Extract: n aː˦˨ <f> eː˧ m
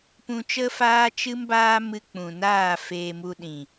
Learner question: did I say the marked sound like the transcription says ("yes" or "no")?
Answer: yes